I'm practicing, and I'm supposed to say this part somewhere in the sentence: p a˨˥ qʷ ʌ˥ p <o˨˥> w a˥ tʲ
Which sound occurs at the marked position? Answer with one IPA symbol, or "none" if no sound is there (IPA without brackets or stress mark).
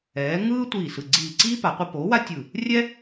o˨˥